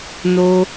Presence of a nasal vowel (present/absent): absent